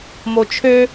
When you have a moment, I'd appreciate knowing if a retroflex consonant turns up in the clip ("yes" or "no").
no